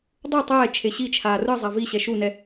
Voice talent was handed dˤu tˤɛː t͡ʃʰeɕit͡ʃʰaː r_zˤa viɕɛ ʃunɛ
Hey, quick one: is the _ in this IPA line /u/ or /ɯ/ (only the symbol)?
ɯ